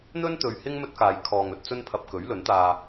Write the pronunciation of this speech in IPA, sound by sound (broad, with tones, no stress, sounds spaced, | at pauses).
n̪ ɵ˥ n t̪ ɵ˨ ɥ h ɪ˥ ŋ m ɵ˥ t̚ k aː˨˧ j kʰ ɔː˨ ŋ ɵ˨ t̚ t͡s ɵ˥ n pʰ ɐ˧ p̚ k ɵ˨˥ ɥ l ɵ˨˥ n t̪ aː˧